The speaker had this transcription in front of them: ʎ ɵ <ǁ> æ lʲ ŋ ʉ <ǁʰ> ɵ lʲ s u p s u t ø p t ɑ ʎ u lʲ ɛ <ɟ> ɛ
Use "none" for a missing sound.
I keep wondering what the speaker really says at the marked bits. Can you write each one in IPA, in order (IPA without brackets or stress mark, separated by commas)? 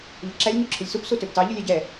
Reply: ǁ, ǁʰ, ɟ